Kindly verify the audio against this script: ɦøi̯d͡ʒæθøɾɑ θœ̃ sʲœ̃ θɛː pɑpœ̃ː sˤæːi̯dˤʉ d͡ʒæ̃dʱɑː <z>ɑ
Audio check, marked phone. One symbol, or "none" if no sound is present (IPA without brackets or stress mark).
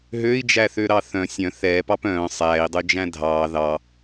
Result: ð